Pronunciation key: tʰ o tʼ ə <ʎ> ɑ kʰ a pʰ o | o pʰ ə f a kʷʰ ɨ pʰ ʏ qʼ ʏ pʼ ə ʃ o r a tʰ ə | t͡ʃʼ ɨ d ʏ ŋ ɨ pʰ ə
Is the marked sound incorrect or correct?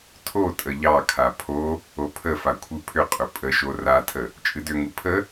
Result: correct